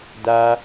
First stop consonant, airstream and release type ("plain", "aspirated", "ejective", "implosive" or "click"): plain